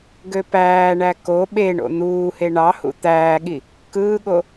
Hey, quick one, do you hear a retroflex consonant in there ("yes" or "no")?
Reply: yes